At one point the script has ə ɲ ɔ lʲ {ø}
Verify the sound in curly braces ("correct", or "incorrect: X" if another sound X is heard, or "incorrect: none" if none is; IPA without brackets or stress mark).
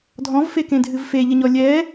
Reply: incorrect: ɛ